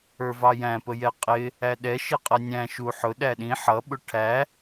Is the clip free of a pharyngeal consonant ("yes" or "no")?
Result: no